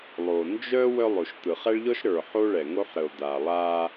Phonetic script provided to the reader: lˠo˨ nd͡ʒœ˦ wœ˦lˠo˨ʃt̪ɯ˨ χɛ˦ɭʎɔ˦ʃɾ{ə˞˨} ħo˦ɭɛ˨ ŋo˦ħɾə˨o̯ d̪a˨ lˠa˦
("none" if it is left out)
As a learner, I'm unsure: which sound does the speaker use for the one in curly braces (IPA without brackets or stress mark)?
ə˞˨